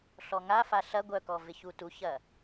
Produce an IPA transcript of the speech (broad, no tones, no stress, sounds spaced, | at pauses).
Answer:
ɬ ɔ ŋ a f a ɬ ɐ ɡʷ œ k ɔ v ɪ ç u t u ç ɐ